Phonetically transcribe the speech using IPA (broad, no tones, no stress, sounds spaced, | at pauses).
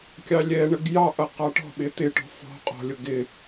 kʲ ɑ lʲ ɛ ɳ ə ɡ j ɑ ʔ ʌ q ɑ ʈ ɔ̤ ɓ ɪ t̪ ɪ ʈ ɔ̤ f ɔ̤ qʼ ɔ̤ lʲ ʊ ɡ ɪ